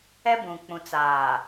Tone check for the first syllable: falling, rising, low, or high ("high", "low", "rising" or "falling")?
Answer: high